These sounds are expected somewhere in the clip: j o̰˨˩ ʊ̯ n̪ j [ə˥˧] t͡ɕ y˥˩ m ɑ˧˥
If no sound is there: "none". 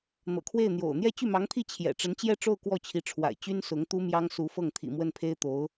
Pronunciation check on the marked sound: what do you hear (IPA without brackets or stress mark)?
ɛ˥˧